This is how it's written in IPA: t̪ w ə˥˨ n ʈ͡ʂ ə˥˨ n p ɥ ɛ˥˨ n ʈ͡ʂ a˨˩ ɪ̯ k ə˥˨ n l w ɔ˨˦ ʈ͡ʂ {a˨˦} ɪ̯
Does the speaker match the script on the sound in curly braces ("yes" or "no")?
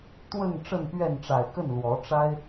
no